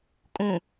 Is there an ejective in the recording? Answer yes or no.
yes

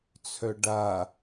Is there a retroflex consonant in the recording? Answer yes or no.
yes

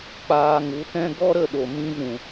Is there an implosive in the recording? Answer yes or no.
yes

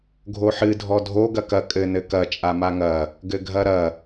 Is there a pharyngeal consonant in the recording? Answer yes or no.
yes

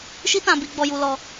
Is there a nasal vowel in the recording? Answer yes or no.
yes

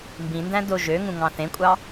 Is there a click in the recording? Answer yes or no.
no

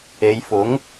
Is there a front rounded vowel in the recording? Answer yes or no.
no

